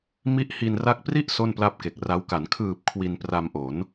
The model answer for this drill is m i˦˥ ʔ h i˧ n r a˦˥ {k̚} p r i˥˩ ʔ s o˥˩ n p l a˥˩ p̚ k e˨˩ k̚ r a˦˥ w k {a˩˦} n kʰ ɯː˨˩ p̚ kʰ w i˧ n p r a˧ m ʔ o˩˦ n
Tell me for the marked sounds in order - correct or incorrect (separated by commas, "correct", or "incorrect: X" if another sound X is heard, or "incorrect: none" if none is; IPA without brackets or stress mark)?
correct, correct